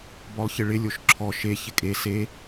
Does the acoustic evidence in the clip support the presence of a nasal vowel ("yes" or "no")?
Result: no